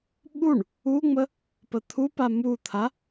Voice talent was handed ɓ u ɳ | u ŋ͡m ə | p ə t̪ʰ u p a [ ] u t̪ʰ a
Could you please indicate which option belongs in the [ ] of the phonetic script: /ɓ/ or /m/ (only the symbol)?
m